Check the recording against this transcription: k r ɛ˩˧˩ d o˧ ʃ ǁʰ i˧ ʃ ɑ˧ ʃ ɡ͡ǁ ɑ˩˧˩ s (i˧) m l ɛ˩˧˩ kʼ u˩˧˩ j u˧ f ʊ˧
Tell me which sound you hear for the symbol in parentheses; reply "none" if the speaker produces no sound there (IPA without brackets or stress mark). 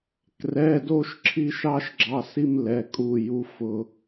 i˧